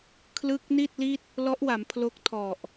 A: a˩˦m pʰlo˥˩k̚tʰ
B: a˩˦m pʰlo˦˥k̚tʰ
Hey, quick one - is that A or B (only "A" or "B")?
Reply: B